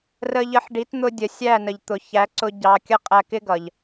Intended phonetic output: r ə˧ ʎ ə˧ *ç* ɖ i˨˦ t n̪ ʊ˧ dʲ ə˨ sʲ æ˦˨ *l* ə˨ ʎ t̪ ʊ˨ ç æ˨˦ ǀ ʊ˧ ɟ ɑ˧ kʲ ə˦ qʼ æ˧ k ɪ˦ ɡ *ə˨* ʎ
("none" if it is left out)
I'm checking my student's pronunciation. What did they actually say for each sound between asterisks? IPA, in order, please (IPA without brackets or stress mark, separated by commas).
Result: ħ, n, ʌ˨